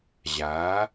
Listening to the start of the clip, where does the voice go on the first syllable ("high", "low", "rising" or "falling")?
rising